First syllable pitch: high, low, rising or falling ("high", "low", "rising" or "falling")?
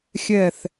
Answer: falling